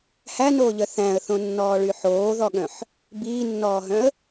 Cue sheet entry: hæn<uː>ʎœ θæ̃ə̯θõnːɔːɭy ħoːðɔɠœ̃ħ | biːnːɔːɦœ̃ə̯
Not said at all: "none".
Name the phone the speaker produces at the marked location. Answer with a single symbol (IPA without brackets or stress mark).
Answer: oː